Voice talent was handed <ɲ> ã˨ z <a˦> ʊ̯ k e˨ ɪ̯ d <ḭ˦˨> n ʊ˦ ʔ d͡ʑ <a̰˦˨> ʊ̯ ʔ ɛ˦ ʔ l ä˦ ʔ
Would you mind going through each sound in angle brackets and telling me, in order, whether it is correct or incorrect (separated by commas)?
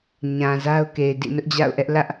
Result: correct, correct, correct, correct